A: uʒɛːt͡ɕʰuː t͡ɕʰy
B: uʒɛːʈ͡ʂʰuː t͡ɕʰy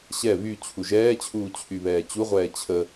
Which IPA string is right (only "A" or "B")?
A